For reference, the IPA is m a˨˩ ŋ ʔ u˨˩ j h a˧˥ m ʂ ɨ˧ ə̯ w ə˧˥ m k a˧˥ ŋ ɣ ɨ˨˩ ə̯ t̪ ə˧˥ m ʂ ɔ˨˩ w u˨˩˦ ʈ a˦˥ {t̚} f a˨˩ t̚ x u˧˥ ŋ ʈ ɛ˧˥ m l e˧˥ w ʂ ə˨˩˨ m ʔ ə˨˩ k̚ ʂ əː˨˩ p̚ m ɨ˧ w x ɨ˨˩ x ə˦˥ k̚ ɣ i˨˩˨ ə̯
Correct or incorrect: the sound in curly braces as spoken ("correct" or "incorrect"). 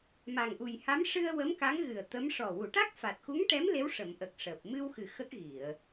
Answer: incorrect